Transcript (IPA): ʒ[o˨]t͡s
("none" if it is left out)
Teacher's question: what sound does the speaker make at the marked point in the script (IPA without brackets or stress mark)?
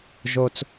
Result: o˥